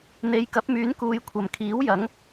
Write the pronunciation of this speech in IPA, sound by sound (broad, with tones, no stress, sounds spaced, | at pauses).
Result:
n̪ e˨˧ j k ɐ˨˥ p̚ m yː˨˥ n k uː˨˧ j kʷʰ ɐ˨ m kʰ iː˨˥ w j ɐ˨˥ ŋ